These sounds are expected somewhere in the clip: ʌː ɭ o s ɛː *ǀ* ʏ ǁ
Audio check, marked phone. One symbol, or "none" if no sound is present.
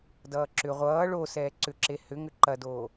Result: ǀ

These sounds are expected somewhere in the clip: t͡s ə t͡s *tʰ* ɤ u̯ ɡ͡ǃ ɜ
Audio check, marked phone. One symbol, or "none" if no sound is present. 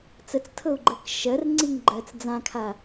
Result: tʰ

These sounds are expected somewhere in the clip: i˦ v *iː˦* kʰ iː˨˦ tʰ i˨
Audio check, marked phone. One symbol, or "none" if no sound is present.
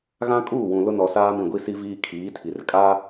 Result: iː˦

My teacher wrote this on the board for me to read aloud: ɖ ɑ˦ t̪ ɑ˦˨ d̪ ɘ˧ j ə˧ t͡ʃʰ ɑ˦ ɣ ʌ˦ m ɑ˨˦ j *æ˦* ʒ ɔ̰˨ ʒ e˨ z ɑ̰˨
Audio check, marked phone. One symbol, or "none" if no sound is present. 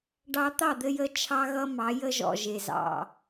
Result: ə˦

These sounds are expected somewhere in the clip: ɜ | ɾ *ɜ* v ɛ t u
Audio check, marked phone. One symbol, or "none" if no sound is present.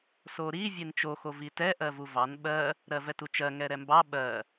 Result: ɜ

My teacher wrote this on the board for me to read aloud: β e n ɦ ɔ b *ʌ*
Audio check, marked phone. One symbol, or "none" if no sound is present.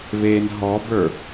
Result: ə˞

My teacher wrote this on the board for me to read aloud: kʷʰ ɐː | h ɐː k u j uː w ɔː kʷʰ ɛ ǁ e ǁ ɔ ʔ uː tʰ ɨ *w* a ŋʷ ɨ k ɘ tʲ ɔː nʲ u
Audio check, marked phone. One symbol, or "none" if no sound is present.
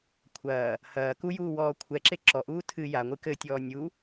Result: j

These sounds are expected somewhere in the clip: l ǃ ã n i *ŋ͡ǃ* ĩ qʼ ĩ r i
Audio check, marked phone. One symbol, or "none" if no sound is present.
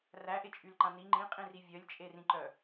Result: ŋ͡ǃ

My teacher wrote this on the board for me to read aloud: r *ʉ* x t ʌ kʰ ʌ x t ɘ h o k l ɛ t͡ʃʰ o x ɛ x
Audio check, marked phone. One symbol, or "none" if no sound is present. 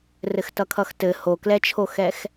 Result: ɘ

